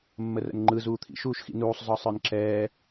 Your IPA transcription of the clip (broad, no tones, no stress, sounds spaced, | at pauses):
mː ə r ə̰ n ŋ͡ǃ ɯ z uː t̪ʰ ḭ ʃ uː ʃ x ḭ n uː sˤ z ɒ sˤ ə˞ n ǁ ɛː